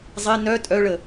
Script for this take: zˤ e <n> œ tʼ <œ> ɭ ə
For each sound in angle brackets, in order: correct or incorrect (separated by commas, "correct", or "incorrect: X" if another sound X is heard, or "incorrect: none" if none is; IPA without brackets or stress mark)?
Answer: correct, correct